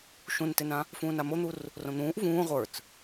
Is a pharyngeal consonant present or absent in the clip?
absent